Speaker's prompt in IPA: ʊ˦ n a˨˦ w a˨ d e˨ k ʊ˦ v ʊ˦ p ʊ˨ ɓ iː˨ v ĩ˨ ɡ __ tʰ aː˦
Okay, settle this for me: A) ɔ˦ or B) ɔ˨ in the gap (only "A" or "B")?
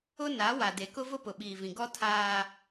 A